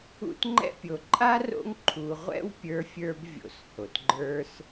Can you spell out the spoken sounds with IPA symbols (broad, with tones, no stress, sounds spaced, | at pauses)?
ṵ˦ t ŋ͡ǃ ɛ̰˥ pʲ o˨ ǃʼ a˥ r o̰˦ ŋ ǃʰ u˨ ʁʷ ɛ̰˥ w pʲ ə˞˦ fʲ ə˞˦ b vʲ o̰˨ s h o˩ t ɡ͡ǃ ə˞˦ s